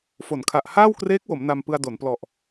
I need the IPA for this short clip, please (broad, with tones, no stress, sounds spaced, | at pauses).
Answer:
f o˩˦ n kʰ a˨˩ ʔ h aː˥˩ w k r eː˦˥ k̚ w o˩˦ m n a˧ m p ɯ˧ a̯ d o˩˦ n p l ɔ˨˩ ʔ